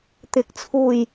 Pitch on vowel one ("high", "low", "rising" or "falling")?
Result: rising